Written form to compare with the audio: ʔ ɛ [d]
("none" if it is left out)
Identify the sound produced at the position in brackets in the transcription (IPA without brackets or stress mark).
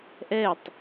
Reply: tˤ